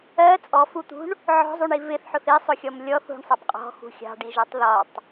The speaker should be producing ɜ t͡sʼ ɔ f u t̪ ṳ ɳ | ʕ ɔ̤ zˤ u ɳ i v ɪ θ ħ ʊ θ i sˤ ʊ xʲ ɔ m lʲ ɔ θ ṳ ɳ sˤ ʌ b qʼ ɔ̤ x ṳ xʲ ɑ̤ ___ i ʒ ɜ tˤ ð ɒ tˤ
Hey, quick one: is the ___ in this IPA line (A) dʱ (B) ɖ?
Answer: B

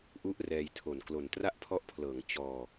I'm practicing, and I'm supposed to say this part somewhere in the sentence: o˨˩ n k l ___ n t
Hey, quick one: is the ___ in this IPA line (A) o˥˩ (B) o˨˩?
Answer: B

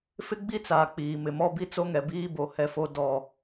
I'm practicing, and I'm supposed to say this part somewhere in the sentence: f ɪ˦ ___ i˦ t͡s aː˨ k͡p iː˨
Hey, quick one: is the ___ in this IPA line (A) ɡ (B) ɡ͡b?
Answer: B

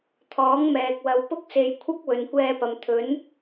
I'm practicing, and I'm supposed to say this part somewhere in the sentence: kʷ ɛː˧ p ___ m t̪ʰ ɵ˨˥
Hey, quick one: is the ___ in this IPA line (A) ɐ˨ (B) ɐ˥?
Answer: A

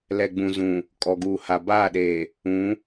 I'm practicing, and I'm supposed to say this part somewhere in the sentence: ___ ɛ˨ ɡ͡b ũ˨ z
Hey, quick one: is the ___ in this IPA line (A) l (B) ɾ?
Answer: A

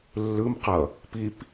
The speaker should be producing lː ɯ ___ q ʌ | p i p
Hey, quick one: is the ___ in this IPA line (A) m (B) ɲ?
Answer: A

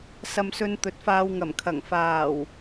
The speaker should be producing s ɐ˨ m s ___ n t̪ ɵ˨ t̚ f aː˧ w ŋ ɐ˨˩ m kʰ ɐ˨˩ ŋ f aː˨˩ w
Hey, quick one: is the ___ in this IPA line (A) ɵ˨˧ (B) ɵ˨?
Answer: B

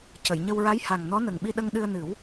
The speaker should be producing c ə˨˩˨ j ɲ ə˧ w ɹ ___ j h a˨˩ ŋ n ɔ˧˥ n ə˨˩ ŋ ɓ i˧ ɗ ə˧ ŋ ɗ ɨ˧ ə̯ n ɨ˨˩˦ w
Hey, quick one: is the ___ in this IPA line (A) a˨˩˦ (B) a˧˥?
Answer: B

